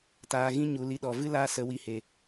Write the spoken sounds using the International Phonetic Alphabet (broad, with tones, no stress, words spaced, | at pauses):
taː˧ɣĩ˦ ɲu˨li˧ɗɔ˨vɨ˦ laː˦sə˨˦wi˧he˨